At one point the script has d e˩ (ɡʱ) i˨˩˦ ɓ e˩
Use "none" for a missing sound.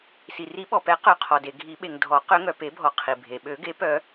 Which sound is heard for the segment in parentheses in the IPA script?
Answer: ɡʱ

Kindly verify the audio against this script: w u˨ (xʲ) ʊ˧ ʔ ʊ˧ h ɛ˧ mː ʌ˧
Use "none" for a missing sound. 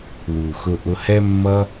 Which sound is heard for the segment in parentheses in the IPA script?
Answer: x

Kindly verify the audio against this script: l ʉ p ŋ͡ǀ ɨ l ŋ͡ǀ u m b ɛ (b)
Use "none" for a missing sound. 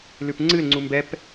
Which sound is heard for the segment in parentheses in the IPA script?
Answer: p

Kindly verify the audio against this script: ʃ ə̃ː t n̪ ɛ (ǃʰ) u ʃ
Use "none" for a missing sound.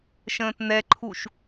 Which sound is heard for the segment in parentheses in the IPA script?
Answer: ǃʰ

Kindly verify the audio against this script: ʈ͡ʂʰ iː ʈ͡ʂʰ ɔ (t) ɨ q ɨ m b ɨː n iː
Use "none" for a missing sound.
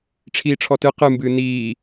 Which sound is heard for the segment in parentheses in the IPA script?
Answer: t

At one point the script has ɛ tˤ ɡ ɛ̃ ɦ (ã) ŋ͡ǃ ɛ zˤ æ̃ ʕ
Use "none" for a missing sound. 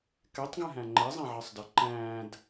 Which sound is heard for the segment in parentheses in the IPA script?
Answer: æ̃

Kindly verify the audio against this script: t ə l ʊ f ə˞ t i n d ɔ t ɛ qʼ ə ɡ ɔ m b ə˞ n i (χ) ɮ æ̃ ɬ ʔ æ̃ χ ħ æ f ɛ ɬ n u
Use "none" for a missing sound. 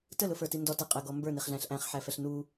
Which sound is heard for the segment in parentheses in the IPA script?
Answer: χ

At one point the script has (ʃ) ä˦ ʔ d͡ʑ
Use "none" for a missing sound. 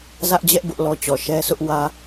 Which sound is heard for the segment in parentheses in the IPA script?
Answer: z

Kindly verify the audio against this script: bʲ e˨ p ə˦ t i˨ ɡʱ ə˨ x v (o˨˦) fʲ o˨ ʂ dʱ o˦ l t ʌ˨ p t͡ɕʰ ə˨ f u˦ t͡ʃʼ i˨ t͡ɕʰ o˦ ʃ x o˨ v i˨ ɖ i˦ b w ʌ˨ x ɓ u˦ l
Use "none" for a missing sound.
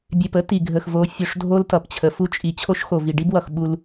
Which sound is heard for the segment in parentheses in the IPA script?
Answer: o˨˦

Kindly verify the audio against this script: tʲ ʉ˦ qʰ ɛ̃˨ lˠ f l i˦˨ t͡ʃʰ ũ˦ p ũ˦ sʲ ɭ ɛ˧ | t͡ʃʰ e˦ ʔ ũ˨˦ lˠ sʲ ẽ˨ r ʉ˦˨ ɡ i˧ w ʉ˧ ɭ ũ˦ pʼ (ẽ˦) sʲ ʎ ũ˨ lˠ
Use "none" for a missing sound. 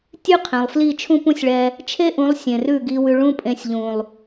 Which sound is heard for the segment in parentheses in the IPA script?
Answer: ẽ˧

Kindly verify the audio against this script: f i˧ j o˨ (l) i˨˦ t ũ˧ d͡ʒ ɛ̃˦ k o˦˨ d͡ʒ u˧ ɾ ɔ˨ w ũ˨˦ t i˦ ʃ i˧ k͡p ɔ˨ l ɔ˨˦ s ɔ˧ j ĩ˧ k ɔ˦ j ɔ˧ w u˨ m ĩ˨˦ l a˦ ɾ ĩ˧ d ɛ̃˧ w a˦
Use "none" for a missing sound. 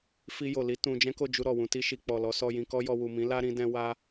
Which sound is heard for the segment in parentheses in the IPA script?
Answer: l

